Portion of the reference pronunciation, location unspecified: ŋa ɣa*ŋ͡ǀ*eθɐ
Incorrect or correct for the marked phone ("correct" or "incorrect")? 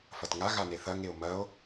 incorrect